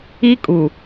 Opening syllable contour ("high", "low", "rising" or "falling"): high